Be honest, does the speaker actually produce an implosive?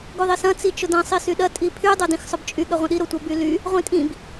yes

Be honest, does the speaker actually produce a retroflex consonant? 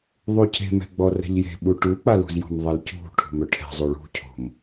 yes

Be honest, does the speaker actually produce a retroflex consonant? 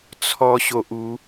no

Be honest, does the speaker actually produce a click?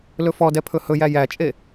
no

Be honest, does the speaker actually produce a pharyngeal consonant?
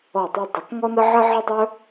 yes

